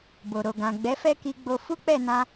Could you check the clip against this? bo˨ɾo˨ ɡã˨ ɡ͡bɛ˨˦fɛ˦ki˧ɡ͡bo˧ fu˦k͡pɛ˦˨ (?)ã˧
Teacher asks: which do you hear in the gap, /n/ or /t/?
n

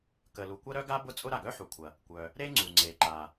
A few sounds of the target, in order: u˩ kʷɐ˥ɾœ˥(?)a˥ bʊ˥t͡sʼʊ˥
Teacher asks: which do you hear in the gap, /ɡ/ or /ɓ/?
ɡ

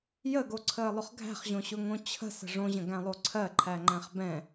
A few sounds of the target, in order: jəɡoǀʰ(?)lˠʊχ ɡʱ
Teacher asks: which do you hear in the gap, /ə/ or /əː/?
əː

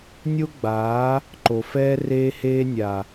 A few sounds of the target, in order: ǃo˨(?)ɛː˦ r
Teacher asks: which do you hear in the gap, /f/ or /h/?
f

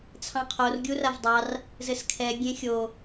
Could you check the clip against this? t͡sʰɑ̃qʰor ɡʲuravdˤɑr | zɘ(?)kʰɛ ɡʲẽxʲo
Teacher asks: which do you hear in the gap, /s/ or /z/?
s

